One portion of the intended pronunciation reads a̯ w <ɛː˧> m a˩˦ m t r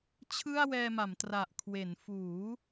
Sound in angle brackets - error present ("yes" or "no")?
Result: no